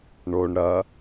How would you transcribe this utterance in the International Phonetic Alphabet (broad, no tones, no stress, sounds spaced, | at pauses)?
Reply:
ɳ o ɳ ɾ ɐ